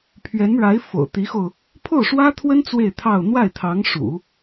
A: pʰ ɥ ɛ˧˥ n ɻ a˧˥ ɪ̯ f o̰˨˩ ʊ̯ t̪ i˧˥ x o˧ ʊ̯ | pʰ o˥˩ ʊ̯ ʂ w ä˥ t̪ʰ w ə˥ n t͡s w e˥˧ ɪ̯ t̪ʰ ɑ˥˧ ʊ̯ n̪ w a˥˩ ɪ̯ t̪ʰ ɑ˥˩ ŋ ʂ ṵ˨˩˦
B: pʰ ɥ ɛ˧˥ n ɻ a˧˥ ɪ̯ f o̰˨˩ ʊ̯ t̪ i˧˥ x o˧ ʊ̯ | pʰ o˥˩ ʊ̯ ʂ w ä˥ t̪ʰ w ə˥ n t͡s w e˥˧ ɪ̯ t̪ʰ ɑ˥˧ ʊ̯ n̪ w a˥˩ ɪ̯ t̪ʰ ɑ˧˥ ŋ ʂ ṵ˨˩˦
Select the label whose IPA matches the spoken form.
B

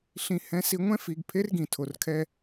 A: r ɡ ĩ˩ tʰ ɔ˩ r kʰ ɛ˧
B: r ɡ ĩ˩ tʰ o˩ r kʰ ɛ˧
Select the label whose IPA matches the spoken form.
B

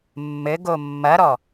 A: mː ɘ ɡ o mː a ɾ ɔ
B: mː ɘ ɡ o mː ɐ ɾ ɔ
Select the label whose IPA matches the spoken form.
B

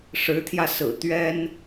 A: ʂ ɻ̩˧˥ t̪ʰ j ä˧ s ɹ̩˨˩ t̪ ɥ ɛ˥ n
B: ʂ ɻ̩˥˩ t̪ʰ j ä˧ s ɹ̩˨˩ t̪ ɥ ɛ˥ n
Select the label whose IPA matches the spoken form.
A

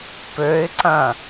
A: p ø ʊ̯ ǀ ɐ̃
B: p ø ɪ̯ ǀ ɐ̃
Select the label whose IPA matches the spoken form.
B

